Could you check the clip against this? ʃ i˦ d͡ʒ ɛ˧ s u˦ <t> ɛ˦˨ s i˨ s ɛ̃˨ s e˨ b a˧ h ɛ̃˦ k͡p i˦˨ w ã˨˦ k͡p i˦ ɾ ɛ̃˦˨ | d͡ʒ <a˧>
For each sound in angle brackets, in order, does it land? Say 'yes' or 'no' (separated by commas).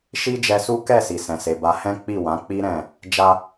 no, yes